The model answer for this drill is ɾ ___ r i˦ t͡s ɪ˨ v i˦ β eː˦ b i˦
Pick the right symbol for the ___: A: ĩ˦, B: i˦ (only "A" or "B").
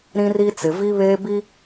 A